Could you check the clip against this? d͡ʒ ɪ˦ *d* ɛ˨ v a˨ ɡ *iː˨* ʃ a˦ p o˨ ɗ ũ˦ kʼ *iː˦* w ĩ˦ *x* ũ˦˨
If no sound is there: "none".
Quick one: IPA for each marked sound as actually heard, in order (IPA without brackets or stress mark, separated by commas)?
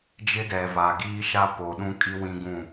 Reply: d, iː˦, i˦, ɡ